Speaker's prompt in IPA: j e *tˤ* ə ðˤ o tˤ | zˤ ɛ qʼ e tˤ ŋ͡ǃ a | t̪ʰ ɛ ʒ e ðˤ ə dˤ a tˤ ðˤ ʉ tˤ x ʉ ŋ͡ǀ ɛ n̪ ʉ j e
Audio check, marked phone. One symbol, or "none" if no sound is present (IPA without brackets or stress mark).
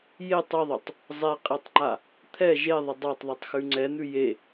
tˤ